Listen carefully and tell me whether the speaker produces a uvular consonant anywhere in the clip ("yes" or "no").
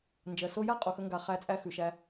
yes